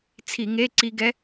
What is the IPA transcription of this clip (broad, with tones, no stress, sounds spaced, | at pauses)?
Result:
t͡sʰ i˧˩˧ ŋ e˧˥˧ ǀ i˧ ɡ ɛ˧˥